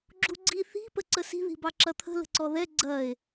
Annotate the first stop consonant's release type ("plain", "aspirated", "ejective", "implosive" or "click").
click